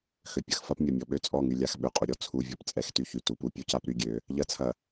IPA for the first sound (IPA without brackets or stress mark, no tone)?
x